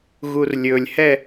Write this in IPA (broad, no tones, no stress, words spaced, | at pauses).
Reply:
ɣurlʲɵlʲhɛ